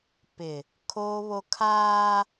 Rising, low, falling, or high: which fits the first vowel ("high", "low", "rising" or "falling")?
low